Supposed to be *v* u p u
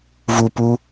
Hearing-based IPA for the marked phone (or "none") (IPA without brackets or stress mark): v